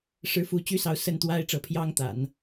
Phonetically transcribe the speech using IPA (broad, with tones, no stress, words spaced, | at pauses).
ʂɻ̩˥˧fu˥˩ t͡ɕy˥sɑ˧˥ʊ̯ sə˥˩nt̪wa˥ɪ̯ʈ͡ʂɤ˧˥pʰjɑ˥ŋ t̪a̰˨˩˦n